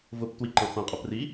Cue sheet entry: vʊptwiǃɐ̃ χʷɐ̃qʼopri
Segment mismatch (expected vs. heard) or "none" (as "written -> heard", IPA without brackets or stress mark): none